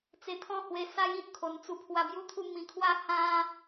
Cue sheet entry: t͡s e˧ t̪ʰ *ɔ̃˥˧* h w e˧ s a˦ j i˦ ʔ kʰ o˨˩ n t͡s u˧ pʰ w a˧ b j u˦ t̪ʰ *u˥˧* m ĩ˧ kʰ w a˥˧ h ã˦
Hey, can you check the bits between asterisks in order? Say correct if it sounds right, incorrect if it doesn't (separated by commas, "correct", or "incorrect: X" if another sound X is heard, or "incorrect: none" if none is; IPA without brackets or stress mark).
correct, correct